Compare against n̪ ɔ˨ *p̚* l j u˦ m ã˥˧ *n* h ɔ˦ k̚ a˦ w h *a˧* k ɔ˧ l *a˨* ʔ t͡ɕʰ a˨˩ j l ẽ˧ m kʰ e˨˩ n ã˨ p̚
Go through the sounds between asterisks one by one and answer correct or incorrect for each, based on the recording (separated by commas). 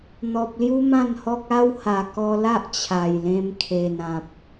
correct, correct, incorrect, incorrect